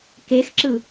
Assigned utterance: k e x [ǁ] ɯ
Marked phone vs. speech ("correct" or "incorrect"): correct